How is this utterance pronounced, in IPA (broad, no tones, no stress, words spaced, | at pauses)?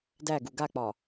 dæɡu ɡak͡pɒ